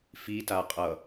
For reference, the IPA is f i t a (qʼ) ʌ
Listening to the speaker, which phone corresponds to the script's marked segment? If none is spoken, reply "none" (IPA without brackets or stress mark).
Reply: qʼ